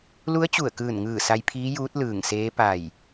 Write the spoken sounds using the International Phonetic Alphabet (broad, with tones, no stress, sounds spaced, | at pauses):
l u˧˥ ə̯ t͡ɕ u˧˩ ə̯ k ɯː˧˩ n ŋ ɯː˧˩ s a˧ j pʰ iː˧˥ j uː˧˥ t̚ l ɯː˧˩ ŋ s eː˧˥ p a˧˩ j